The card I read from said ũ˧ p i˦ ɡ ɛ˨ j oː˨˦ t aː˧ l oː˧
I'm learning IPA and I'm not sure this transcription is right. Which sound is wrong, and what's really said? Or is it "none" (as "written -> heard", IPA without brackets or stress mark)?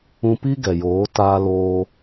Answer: none